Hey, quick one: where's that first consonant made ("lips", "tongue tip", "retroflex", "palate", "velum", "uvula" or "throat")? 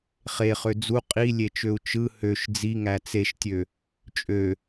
uvula